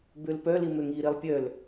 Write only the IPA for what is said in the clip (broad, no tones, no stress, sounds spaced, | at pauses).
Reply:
b ø l p œ l i m ø ŋ i ɾ i lˠ pʲ œ l